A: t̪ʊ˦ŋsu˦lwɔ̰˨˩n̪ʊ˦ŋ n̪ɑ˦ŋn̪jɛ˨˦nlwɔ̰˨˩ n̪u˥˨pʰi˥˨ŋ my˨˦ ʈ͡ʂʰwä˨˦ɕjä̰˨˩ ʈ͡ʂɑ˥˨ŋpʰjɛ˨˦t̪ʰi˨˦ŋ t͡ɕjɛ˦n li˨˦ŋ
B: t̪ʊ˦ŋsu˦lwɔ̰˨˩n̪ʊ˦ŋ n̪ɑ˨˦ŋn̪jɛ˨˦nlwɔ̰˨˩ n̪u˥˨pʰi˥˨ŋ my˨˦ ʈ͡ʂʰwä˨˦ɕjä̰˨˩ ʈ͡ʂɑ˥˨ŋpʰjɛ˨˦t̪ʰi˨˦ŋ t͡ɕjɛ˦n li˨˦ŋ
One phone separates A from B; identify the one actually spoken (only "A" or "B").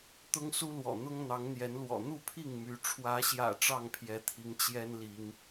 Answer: B